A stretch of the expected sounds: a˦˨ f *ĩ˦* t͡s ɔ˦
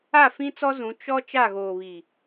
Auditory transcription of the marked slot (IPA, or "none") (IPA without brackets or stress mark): ĩ˦